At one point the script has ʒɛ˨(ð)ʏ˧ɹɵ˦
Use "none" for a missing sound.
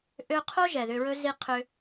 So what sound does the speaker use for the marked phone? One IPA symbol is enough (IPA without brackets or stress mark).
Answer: ð